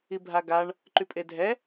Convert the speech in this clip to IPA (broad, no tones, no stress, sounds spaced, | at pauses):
i bʱ a ɡ a ɳ | ǃ y pʼ e dʱ ɛ